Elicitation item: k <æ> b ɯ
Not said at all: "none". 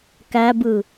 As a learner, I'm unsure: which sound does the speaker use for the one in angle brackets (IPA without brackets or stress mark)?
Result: æ